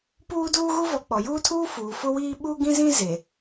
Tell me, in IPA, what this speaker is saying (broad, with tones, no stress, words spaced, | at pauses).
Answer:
puː˦duː˦ɣu˦vɔ˨ k͡pɔ˨juː˦tʰuː˦ fuː˨ fʊ˦wiː˦ ɓu˦ ɡĩ˦zĩ˦ ze˨